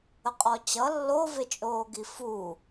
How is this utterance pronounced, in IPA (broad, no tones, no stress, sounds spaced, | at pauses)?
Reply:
ə qʼ ɔ t͡ɕ ʌ lː o v e t͡ʃʼ oː ɡ i f u